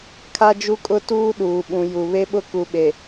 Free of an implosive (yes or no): no